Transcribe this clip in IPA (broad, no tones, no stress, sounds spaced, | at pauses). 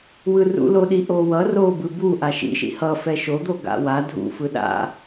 w ɯ r ṵ l o ɗ i ʔ o w ʌ r o b ɯ b u ʔ a ʃ ḭ ʃ ḭ h ʌ f ɛ ʃ o d̪ o ɡ a̰ w a dʱ ṵ f ɯ ɗ a̰